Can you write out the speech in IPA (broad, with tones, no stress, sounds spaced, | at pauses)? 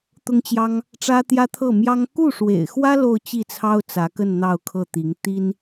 t̪ ʊ˥ ŋ t͡ɕ j ɑ˥ ŋ | ʈ͡ʂ ä˥ t̪ j ä˥ t̪ʰ ɤ˥˩ m j ɑ˥ ŋ k u˥˩ ʂ w ḛ˨˩ ɪ̯ x w ä˥ l o˥˧ ʊ̯ t͡ɕ i˥˩ t͡sʰ ɑ˥ ʊ̯ t͡s ä˧˥ k ə˥˧ n n̪ ɑ˥˧ ʊ̯ kʰ ɤ˥˩ t̪ i˧˥ ŋ t̪ i˥ n